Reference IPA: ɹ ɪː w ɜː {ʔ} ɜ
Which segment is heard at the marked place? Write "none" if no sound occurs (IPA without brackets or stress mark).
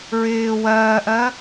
ʔ